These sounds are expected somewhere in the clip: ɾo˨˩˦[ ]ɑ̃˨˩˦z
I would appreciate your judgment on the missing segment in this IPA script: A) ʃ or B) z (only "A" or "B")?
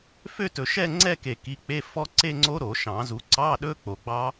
A